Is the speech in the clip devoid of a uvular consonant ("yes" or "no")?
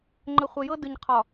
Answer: no